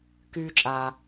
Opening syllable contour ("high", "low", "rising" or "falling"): low